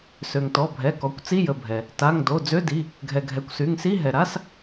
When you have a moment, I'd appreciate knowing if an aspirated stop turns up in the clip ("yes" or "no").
no